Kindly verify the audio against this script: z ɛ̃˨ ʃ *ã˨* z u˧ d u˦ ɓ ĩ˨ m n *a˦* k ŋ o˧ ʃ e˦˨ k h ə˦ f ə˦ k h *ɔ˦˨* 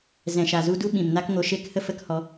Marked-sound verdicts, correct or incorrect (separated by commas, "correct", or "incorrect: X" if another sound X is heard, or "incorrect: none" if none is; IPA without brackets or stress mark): incorrect: a˨, correct, incorrect: ɔ˧